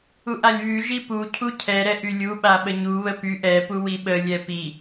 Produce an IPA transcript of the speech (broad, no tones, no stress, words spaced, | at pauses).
uʔalʲβy ʒipu cʰucʰɛ ɾɛʔylʲu ɓaɓəɲu βəpyʔ ɛ puwiɓə lʲɛpi